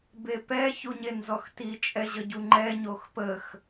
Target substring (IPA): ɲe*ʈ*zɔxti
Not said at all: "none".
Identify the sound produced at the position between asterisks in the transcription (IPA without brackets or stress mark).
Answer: n